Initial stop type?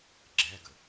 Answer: click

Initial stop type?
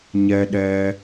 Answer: implosive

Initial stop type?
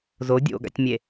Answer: plain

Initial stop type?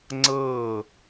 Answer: click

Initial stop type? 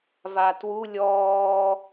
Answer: plain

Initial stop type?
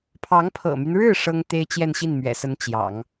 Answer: aspirated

